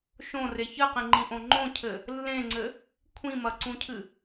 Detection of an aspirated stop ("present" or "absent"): present